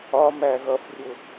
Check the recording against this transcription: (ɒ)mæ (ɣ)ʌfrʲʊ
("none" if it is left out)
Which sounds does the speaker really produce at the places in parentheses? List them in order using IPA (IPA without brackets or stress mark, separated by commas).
ɒ, ɣ